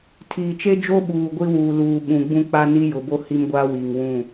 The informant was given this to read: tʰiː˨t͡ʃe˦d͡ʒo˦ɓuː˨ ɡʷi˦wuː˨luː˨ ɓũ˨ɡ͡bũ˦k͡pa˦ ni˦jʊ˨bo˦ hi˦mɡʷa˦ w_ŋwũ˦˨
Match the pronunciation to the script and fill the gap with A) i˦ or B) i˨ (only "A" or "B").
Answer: B